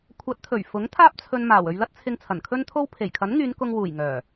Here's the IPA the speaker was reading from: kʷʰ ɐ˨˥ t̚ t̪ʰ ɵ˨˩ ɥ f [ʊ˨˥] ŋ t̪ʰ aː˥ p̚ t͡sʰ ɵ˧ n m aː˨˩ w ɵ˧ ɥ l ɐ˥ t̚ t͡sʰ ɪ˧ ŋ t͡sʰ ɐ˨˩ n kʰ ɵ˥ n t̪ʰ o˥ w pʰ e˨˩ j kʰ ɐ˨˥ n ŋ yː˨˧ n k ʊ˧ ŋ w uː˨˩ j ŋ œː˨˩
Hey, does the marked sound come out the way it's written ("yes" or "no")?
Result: yes